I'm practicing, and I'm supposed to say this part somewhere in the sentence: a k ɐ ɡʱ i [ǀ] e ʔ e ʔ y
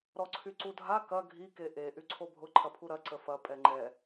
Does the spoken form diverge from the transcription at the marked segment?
yes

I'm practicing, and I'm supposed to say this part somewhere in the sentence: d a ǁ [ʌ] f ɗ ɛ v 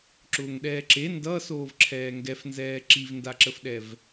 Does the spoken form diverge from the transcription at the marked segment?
yes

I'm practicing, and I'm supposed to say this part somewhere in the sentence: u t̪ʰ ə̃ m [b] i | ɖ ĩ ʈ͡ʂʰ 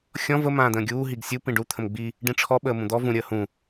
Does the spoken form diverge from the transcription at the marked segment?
yes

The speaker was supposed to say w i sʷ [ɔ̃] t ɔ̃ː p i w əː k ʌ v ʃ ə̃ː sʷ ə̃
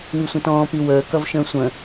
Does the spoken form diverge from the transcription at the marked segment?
yes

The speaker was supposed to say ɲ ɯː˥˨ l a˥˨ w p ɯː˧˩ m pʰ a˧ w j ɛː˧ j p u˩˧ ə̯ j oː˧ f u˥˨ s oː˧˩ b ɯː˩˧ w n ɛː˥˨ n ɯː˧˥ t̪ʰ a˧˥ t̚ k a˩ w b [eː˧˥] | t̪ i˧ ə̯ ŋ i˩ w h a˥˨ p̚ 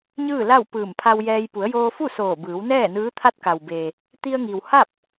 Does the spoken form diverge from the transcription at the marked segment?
yes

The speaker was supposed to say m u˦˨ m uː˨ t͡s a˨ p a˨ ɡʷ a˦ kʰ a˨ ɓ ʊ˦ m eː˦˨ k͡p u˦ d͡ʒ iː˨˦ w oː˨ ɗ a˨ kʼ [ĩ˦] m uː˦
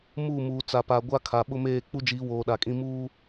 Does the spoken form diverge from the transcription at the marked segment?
no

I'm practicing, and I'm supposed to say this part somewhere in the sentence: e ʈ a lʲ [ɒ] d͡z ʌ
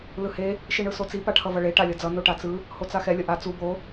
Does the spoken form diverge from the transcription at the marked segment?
yes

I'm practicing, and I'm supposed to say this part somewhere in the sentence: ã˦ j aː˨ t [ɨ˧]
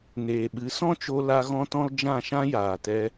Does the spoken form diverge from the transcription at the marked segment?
yes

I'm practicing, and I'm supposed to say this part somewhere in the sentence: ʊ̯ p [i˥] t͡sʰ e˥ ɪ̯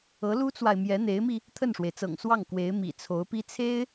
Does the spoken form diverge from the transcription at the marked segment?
no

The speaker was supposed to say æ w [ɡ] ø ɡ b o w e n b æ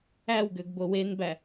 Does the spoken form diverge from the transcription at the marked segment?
no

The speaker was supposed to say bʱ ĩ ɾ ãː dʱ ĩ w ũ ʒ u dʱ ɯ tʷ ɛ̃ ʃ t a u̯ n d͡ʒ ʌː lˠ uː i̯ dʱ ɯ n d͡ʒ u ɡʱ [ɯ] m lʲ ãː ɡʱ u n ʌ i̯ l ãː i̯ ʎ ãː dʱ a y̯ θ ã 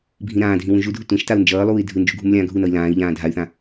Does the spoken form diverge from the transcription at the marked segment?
yes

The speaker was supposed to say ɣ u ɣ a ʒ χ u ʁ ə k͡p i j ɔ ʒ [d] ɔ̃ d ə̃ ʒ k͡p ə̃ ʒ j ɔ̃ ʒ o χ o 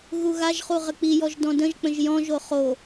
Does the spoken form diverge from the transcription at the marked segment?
no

